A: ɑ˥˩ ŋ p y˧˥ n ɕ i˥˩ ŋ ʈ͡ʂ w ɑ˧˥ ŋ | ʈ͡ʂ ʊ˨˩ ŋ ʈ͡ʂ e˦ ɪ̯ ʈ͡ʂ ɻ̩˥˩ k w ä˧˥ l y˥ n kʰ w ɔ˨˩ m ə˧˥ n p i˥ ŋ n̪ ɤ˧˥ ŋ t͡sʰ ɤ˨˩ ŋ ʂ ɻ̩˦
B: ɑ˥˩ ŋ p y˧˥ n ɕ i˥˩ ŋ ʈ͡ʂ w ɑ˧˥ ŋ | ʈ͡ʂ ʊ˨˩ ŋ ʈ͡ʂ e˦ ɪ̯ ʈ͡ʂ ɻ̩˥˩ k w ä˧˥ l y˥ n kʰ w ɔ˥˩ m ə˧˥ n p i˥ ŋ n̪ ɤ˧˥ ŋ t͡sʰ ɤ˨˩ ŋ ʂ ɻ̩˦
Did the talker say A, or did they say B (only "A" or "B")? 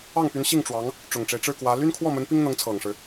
B